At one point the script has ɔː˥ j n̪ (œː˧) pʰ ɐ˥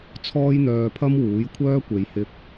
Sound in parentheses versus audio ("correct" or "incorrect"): correct